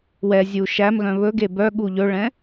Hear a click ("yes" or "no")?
no